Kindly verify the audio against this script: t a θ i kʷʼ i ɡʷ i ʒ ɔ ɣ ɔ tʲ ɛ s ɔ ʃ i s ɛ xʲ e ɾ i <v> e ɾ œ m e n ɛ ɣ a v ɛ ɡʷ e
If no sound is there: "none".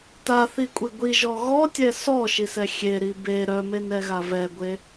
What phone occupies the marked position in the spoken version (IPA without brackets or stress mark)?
b